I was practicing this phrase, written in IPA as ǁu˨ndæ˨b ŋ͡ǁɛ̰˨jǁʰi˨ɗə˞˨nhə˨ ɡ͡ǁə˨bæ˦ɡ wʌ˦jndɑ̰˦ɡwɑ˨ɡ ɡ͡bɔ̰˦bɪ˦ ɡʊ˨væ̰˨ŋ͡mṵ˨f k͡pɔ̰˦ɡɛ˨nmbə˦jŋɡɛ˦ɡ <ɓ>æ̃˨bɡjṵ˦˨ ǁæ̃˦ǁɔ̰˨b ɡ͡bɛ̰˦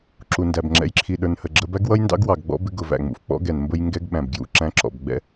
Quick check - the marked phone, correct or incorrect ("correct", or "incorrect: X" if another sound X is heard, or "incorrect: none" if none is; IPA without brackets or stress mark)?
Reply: correct